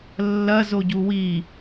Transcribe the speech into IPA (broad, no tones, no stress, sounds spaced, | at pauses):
lː ɐ z o ɟ u w i